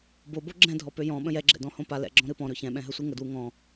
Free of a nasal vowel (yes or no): no